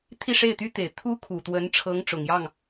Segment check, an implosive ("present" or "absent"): absent